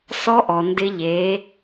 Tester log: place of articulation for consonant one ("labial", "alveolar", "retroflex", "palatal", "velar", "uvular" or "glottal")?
alveolar